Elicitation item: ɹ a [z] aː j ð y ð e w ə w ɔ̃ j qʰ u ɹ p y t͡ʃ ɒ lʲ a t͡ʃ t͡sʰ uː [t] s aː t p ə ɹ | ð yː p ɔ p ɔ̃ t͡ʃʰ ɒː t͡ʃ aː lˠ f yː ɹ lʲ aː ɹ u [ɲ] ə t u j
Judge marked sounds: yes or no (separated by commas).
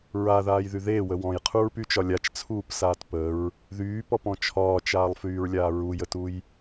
no, no, no